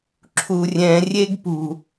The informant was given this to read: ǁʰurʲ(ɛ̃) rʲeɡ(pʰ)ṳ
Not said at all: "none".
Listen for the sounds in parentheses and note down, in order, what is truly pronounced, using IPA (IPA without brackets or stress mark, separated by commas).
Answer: ɛ̃, p